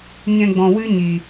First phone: ɲ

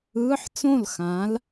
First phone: ɯː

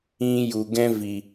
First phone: ĩ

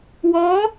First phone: w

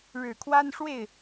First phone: ɻ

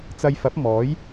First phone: t͡s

